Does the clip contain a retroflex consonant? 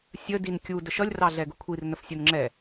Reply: no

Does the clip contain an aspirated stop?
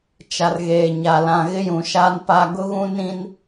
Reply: no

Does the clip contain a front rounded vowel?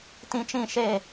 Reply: no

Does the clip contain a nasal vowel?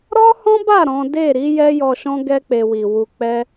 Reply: yes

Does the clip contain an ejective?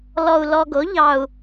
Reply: no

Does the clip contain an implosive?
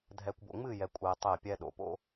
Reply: yes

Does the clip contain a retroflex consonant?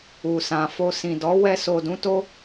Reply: no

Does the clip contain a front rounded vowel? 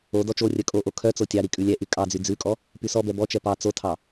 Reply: yes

